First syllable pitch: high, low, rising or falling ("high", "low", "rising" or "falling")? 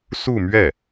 falling